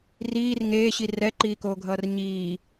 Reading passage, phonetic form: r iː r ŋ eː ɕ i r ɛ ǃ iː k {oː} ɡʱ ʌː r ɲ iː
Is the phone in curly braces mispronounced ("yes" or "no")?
no